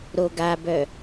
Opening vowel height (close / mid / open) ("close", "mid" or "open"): mid